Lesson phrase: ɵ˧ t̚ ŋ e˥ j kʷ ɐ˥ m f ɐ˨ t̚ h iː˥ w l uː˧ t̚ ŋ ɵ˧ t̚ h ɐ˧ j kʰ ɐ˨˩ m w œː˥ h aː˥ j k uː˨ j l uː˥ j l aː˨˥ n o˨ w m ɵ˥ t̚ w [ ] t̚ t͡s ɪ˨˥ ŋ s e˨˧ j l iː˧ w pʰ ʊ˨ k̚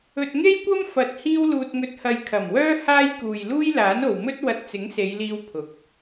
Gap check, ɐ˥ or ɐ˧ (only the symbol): ɐ˧